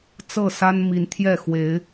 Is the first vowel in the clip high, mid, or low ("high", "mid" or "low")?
mid